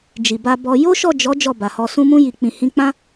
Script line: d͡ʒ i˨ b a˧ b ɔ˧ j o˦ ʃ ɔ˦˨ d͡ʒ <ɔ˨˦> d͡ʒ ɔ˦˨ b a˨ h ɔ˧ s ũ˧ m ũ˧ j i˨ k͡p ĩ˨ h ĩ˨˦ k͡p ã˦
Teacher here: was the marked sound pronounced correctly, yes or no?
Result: yes